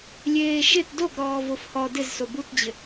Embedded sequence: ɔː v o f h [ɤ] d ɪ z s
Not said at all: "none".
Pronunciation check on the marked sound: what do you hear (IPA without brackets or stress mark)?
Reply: ɔ